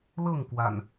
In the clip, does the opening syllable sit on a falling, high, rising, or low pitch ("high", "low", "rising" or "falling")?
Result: falling